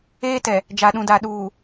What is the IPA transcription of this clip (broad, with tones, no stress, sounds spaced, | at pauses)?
eː˦ t ɛ˨ | d͡ʒ a˨ ɗ ũ˨ d a˨ ɗ uː˨